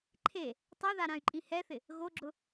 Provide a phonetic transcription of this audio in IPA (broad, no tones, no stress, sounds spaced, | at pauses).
ǃʰ e | tˤ ɛ ð a ɾ ã y̯ ǃʼ ĩ h ɛ θ ɪ | ɣ o ɡ͡ǁ ʊ